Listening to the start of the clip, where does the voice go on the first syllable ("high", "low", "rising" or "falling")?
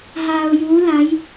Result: low